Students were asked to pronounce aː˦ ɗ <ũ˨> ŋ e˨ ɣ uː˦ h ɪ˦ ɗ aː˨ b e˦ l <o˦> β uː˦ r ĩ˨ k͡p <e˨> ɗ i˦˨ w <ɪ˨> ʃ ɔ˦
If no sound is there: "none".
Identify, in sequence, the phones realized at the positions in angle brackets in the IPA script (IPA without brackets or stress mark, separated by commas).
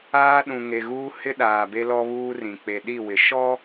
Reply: ũ˨, ɔ˦, e˨, ɪ˨